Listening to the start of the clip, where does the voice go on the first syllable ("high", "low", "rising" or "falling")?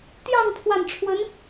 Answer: falling